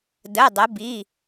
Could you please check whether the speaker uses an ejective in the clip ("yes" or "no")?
no